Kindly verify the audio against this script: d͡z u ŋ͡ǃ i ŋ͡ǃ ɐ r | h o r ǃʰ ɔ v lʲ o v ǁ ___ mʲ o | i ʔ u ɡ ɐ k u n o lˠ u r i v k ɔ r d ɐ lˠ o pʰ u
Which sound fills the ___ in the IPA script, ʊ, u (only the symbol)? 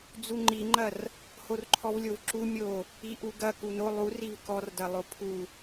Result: u